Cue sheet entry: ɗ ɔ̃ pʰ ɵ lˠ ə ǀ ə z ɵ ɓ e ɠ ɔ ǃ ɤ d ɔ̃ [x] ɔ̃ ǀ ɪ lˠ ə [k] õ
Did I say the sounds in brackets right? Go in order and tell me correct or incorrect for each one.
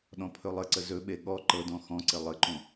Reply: correct, incorrect

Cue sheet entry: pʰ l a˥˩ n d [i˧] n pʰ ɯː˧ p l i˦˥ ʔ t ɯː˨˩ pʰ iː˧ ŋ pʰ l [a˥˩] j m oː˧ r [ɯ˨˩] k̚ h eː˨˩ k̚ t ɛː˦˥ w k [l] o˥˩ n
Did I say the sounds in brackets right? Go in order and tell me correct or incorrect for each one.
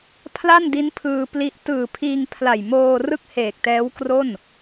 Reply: incorrect, incorrect, incorrect, incorrect

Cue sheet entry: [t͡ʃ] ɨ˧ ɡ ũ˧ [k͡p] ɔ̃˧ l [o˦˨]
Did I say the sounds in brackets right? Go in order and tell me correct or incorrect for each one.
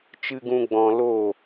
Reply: correct, incorrect, correct

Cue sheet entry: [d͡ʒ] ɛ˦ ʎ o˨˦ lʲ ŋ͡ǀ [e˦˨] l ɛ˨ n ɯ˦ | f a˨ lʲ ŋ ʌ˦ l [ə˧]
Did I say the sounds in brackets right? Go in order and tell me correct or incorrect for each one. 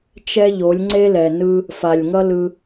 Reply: incorrect, incorrect, incorrect

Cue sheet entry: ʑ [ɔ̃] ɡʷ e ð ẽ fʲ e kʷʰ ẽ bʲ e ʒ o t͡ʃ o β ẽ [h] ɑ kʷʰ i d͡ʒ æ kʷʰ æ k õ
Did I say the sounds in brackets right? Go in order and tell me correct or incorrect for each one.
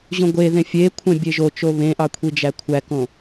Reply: incorrect, incorrect

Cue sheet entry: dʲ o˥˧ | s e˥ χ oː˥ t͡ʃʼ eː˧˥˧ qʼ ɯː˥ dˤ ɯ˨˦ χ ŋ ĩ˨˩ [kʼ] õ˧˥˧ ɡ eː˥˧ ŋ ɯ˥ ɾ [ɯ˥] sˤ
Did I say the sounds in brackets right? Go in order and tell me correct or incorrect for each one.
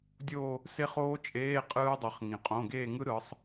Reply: incorrect, incorrect

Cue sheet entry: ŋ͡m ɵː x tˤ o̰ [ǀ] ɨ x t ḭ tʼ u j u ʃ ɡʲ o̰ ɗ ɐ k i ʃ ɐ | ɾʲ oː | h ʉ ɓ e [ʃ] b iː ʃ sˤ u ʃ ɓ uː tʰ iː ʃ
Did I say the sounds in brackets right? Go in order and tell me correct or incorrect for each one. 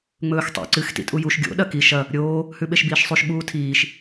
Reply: correct, correct

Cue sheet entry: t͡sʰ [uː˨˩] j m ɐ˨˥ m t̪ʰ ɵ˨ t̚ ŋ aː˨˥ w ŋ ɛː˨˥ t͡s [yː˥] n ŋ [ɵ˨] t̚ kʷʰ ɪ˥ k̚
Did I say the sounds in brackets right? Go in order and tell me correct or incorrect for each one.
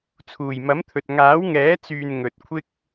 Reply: correct, incorrect, correct

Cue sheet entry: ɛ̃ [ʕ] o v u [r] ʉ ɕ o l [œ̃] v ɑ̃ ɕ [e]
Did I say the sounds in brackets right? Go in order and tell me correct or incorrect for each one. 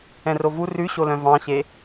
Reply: incorrect, correct, correct, correct

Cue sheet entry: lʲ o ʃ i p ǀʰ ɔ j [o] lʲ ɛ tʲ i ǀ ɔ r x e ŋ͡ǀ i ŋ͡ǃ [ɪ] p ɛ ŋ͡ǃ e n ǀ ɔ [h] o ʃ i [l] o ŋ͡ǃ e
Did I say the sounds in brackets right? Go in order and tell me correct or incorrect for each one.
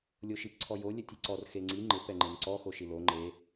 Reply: correct, correct, incorrect, correct

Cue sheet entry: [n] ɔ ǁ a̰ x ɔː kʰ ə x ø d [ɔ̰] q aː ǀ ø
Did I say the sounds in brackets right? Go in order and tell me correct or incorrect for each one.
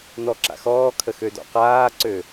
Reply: correct, correct

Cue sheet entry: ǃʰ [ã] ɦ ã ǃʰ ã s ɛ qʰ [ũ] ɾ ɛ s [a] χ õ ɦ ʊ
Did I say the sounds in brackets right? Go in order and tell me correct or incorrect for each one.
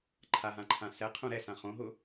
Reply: incorrect, correct, incorrect

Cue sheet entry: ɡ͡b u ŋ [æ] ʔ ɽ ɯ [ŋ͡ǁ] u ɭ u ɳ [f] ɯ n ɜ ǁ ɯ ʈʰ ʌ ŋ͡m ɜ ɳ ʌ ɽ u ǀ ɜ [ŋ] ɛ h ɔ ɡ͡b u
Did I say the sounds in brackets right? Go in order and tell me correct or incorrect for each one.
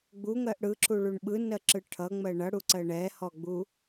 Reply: incorrect, incorrect, incorrect, incorrect

